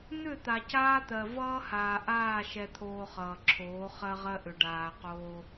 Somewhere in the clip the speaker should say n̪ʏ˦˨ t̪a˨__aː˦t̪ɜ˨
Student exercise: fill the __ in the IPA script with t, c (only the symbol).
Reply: c